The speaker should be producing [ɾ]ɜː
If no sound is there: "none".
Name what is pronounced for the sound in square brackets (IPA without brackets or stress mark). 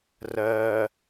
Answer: r